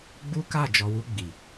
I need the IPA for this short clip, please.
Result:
ɡ͡b u˦ k a˦˨ d͡ʒ ɔ˨ w u˧ ɡ͡b i˨

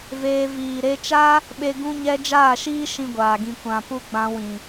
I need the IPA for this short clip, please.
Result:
v eː˧ v iː˨ ɾ e˧ t͡ʃ a˦ | ɓ e˦ ɡ ũ˦ ɲ ɛ˦ d͡ʒ aː˦˨ ʃ iː˦ ʃ ĩ˦ ɡʷ aː˨ ɡ ĩ˧ kʷ ã˨ p u˦ ɡ͡b ã˧ w ĩ˨

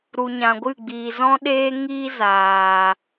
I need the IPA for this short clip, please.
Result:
ɾ u˨ ɲ ã˨ ɡʷ ɨ˦˨ ɡ͡b iː˨ z ɔ̃˦ ɗ eː˦ ŋ iː˦ z aː˨

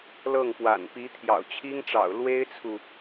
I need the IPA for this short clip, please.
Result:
l ɤ˥˩ ŋ p w a̰˨˩ n p i˧˥ t̪ʰ j ɑ̰˨˩ ʊ̯ t͡ɕʰ i˥ ŋ ʈ͡ʂ ɑ̰˨˩ ʊ̯ l w e˥ ɪ̯ t͡sʰ u˨

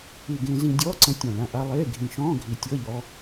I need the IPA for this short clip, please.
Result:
i˨˩ ɡ ẽ˧ z ĩ˧ dʲ ɔː˧˥˧ ǀ ə̃˨˥ tʲ ɔ̃˨˩ ɭ ã˧ ʔ a˧ lˠ eː˧˥˧ ɡʱ ĩ˨˩ ʃ ɔ̃ː˧˥˧ ɡʱ i˨˩ tʲ ɤ˧˥˧ ʎ ɔ˧

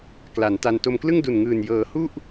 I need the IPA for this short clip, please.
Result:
k l a˩˦ n t a˧ n t o˧ m k l ɯ˥˩ ŋ d u˨˩ n ŋ ɯː˨˩ n j ɤː˩˦ h u˥˩ ʔ

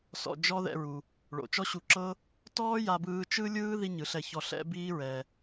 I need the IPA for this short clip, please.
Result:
s ɔ̰˧ d͡ʒ ɔ˥ ð ɛ̰˧ ɹ u˩ | ɭ o̰˩ t͡ʃ ɔ˥ ɕ u˧ ǁ ɤ˥ | t ɔː˥ j a˧ b ɯː˧ t͡ʃ ɯ˥ lʲ ɯː˥ ð i˥ ɲ ɯ˩ ɬ ɛ˧ ç ɔ˧ ɬ ɛ̰˥ b iː˥ ɹ ɛ˩

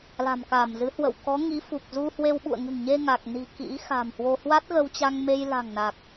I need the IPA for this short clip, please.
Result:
l a̤˨˩ m k aː˧˩ m z ɨ˨˦ h w ə̰˧˨ w k ɔ˨˦ ŋ i˨˦ f u˨˩ k̚ z u˧ h w e˧ w ɓ ṵ˧˨ ə̯ ŋ ɨ̤˨˩ ŋ ɲ e˧ ŋ a˨˩ k̚ n i̤˨˩ k ḭ˧˥ x a̤˨˩ m h w o˧ h w a˦˥ t̚ ɣ ə˧ w t͡ɕ a˧ ŋ m e˧ j l a̤˨˩ ŋ n a˨˩ k̚

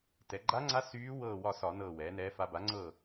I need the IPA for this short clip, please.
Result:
t ɛ˩˧ ɡ͡ǃ a˧˥ ŋ͡ǀ a˧˥ s yː˧˥ w ɤː˦˨ w ɒ˦˨ s ɒ˧˩˧ n ɤː˦˨ w ɛː˩˥ n ɛː˧˥ f a˧˥ b a˩˥ ŋ͡ǀ ɤː˦˨

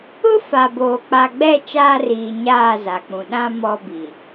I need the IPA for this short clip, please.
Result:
ʊ˦ f a˨ b oː˨ k͡p a˨ ɡ͡b ɛ˦˨ t͡ʃ aː˦ r iː˨ ɲ aː˦˨ z a˨ k͡p ũ˨ ɗ ã˦ m ɔ˦ b i˨

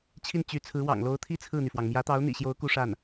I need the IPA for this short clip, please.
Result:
t͡ɕʰ i˥˩ n t͡ɕ y˧˥ t͡sʰ ɹ̩˧˥ w ɑ̰˨˩ ŋ l o˧˥ ʊ̯ t̪ʰ i˥ t͡sʰ ɹ̩˥˩ n̪ y˩ f w ɑ˩ ŋ m j ä˧˥ t̪ ɑ˧˥ ʊ̯ n̪ ḭ˨˩ ɕ j o˧˥ ʊ̯ k u˥ ʂ a˥˩ n

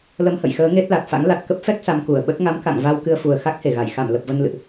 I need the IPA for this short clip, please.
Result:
l ə˧ m h ə̰˧˨ j x əː˨˦ ŋ e˦˥ t̚ l a˨˩ t̚ f a̰˧˥ ŋ l a˨˩ t̚ k ə˦˥ p̚ f ɛ˦˥ k̚ s a˧ m k u˧˩ ə̯ ɓ ə˦˥ t̚ ŋ a˨˦ m k a̰˧˨ ŋ v a˧ w k ɨ˧ ə̯ f u˨˩ ə̯ x a˦˥ k̚ h e˧˩ ɣ a˧˩ j x a˧˩ m l ə˨˩ p̚ v ə˧ n l ɨ̰˧˨ ʔ

